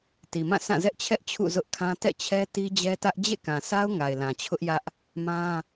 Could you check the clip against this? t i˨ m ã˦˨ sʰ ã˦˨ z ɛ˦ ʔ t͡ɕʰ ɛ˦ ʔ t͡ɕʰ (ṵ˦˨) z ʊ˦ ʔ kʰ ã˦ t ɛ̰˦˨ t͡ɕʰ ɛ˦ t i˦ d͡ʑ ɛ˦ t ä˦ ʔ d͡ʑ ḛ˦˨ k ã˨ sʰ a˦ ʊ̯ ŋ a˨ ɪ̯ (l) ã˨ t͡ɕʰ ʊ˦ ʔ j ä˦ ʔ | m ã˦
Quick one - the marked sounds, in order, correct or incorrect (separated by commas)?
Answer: correct, correct